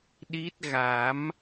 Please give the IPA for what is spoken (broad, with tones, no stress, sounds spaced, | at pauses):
ɗ i˦˥ t̚ ɣ a˨˩˦ m